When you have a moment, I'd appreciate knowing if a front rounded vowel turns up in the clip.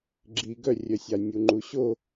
yes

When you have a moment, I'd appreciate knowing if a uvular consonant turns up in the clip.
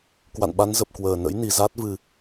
no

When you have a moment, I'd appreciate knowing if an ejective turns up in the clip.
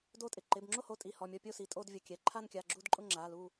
yes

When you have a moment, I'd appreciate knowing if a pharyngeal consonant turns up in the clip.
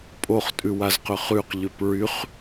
no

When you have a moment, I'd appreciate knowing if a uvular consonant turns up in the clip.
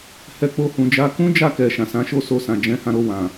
no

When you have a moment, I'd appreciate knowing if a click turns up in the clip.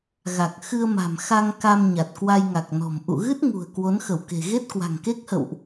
no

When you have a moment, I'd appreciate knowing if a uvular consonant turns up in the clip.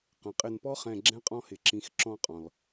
yes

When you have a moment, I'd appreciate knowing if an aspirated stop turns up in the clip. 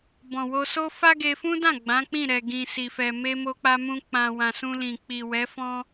no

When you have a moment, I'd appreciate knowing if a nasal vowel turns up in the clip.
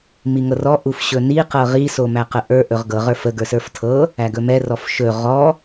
no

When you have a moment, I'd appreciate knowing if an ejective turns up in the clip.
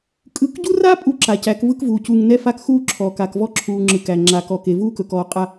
yes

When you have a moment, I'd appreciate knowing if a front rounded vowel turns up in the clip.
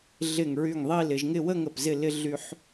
yes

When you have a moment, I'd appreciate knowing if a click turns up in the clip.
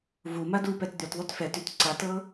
yes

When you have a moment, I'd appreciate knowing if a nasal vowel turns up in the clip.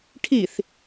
no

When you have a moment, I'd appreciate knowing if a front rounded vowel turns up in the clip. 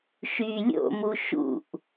yes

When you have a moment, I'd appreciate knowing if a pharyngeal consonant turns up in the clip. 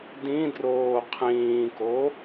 no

